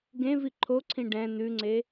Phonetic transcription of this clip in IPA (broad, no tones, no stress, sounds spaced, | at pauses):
ɡ ẽ v i ǃʰ o ǀʰ ĩ ɖ ɛ̃ n̪ ʉ ŋ͡ǀ e